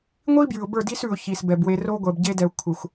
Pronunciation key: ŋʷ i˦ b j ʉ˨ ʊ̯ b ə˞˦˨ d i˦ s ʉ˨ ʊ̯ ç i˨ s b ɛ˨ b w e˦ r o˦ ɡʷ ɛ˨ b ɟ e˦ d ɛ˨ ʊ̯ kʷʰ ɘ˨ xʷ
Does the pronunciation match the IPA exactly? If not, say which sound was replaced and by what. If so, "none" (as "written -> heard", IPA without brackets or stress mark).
none